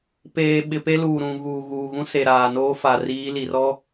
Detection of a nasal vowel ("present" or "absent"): present